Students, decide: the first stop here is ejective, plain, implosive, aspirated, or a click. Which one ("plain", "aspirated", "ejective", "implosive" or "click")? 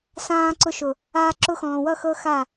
click